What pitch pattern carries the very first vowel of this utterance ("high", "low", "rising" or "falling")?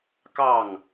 falling